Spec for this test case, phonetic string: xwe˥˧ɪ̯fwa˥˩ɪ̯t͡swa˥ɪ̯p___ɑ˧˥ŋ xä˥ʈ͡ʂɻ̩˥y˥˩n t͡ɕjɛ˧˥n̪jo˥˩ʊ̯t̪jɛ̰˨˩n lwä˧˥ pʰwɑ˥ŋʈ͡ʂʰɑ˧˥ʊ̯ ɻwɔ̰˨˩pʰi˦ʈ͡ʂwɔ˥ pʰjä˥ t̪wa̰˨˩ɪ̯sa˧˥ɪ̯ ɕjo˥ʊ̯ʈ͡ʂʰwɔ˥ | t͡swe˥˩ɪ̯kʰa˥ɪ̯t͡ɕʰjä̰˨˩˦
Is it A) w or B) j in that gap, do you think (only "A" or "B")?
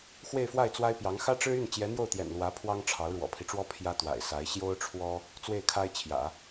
B